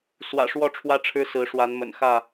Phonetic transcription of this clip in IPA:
s w ä̰˨˩ ʂ w ɔ˥˨ ʈ͡ʂʰ w ä˦ ʈ͡ʂʰ ɻ̩˦ s ɹ̩˨˦ ʂ w a˨˦ n m ə̰˨˩ n x ä˥˨

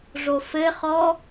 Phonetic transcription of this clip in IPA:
ʐ o f ɘ χ ɔ

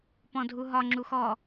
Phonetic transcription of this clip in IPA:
p ɔ̃ dʱ u ɦ ɒ ŋ͡ǁ u x ɔ

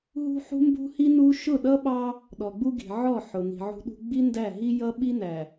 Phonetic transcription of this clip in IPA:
ɦ ṳ˦ ħ ṳ˦ m b ṳ˦ h i˦ n u˦ ʃ ʊ˦˨ ɗ ʌ˦ ɓ ɑ˦ | ɗ ɔ˨ ɡ͡b u˦ ɡ i̤˨ ʕ ɔ˦˨ ħ ʊ˨ n i̤˨ ʕ ṳ˦ ɗ ṳ˦ ɡ͡b i˦ n d æ˦˨ ɦ i˦ j ʌ˦ ɓ i˦ n æ˨

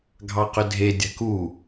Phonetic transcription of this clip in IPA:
ɡʱ ɑ q ʏ dʱ e dʲ a̤ k u

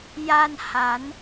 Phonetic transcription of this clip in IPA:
j a˧ n h a˨˩˦ n

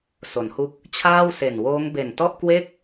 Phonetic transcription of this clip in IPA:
s o˩˦ n h u˦˥ k̚ | t͡ɕʰ aː˥˩ w s e˨˩ n w oː˦˥ ŋ b e˨˩ n t ɔ˥˩ ʔ k w e˥˩ k̚

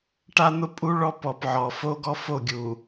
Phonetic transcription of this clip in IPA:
ʈ a˦ n̪ ʊ˦ pʼ u˦ ɭ ɔ˦ p ɔ˨ p ʕ ɔ˨ f o˦ ɡ ɔ˦ f o˦˨ ɡʲ u˨

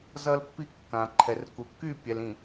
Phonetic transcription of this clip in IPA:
z ʌ˦ l pː i˦ kː ã˨ ǃʰ ɛ˨ r k u˨ kː y˦˨ pʲ ɛ˨ l ĩ˨

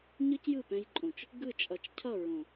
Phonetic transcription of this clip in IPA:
ɲ ɯ˦ c j ɯ˦˨ p ɛ̃˧ j ǃʼ õ˨ t͡ʃ | ɡ ɯ˦˨ t͡ʃʼ ʌ˨ t͡ʃ cʰ ʌ˦˨ ɹ õ˨

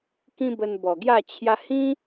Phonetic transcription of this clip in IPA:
k ĩ˦ b ə˧ n b ɔ˨˩ ɡ j a˥˧ t͡ɕʰ j a˧ h ĩ˦

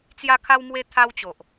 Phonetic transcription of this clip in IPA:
t͡s j a˦ kʰ a˦ w m w e˦ t̪ʰ a˦ w t͡ɕ o˨ ʔ

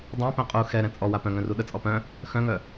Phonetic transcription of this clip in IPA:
dˤ ɛ̃ p ɛ̃ qʼ u x ɛ ɾ ɛ̃ t͡sʼ ɔ w a p œ̃ ŋ œ̃ r u ɗ ə t͡sʼ ɔ p œ̃ | x œ̃ ŋ œ

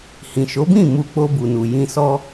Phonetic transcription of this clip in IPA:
h ĩ˨ ʃ o˨˦ b ĩ˦˨ m u˧ k͡p o˧ b u˨ n u˨ j ĩ˧ s ɔ˦

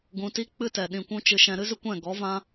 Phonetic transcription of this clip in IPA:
ɡ ũ˨ t i˦ k͡p ɨ˦ t ɛ˨ ɗ ĩ˨ kʷ ũ˧ t͡ʃ ɨ˧ ʃ ɛ̃˧ ɾ ɨ˦ z ɨ˦ kʷ ɛ̃˦˨ ɡ ɔ˨˦ v ã˦

